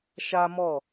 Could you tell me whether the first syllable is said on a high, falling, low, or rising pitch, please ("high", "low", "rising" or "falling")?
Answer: high